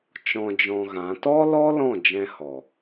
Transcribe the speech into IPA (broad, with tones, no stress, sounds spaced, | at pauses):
t͡ʃ ɔ̃˧ d͡ʒ ɔ̃˧ ɣ ã˨˦ t ɔ˦ l ɔ˦ l ɔ̃˦˨ d͡ʒ ɛ̃˧ h ɔ˨